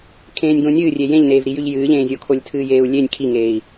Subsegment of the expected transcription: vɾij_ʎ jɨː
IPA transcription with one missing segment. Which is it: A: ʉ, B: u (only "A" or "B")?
A